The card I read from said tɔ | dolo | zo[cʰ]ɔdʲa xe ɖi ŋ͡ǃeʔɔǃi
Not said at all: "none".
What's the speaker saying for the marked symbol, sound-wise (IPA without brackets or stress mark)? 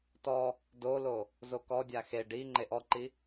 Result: k